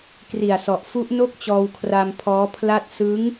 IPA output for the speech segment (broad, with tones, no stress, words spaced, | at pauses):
kri˨˩a̯sɔ˨˩ʔ fu˦˥ʔno˥˩k̚t͡ɕɔː˧w kʰra˧mpʰɔː˦˥pʰla˥˩t̚ sɯ˦˥ŋ